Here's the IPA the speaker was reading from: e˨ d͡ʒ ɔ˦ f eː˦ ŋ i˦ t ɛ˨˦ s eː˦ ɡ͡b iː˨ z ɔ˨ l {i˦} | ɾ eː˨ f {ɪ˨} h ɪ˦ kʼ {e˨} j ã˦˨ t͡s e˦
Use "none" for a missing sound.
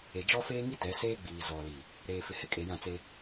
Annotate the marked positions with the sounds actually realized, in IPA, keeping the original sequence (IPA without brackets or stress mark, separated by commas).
i˨, ɪ˨, e˨